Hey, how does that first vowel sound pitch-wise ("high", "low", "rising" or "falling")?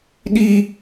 high